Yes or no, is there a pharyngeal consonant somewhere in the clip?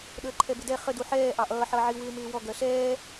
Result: yes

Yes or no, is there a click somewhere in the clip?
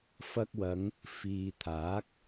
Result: no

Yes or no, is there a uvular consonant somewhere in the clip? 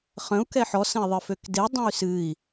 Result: yes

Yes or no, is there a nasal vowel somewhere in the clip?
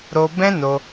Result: yes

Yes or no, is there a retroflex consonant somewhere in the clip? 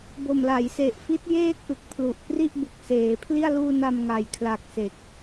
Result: no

